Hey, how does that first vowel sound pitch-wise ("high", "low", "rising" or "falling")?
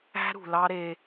high